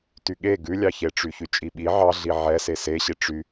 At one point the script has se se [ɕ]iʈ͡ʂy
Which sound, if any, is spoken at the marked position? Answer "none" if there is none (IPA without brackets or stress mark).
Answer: ɕ